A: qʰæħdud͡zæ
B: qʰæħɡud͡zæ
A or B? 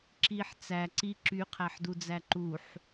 A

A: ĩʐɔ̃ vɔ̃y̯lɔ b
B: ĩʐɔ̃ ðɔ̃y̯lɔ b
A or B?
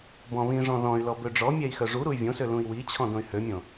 B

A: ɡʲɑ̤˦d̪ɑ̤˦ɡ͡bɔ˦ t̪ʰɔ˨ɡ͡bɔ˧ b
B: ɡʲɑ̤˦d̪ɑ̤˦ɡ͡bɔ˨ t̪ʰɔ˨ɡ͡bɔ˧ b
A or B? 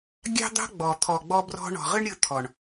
B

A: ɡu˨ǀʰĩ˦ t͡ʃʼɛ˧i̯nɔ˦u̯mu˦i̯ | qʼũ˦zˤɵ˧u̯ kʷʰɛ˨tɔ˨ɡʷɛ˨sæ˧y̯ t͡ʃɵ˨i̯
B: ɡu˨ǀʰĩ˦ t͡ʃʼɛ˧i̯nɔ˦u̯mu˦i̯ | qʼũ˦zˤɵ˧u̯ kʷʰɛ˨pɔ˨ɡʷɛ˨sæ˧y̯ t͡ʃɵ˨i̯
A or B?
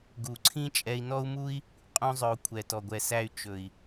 A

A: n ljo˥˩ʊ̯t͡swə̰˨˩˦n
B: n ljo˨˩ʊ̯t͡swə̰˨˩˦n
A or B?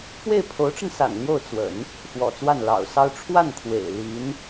A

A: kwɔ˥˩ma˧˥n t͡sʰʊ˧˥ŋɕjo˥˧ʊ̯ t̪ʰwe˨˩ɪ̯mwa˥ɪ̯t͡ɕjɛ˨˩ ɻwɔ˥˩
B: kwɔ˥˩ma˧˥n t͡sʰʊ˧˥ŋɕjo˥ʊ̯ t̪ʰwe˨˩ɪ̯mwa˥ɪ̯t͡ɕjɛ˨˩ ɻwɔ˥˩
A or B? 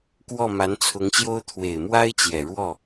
B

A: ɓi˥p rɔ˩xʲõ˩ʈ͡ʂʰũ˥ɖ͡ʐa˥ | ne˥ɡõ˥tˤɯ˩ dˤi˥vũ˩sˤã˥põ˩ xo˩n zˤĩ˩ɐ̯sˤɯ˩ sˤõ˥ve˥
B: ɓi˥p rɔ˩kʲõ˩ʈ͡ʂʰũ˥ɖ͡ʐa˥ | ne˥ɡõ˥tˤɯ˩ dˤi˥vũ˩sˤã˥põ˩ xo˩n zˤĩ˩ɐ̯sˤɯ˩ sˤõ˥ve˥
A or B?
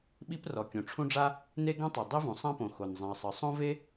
B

